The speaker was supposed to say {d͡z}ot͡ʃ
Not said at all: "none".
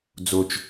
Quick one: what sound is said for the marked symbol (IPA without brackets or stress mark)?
d͡z